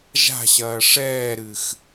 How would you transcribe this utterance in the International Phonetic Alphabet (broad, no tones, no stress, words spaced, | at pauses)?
ʒa̤ɕɐː ʂɛːɾɨx